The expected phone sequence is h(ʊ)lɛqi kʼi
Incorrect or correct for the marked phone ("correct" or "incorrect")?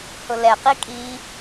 correct